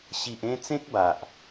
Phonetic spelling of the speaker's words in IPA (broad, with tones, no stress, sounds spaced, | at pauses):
ɕ i˨ ʔ ẽ˥˧ t͡s ẽ˦ k̚ b a˨ ʔ